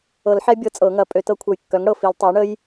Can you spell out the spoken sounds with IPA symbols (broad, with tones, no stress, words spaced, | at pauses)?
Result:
ɤ˨˩˦lħɛ˦˥ bʲɤ˦˥t͡sʼɤ˨˩˦ŋɐ˨˩˦ pʼø˨˩˦tɤ˦˥kʷʰɐ˧j kːœ˩˥ŋɽɤ˨˩fi˨˩˦l tˤɛ˩˥jɳə˦˥j